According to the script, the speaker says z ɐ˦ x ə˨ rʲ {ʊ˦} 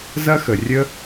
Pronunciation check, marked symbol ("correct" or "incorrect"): incorrect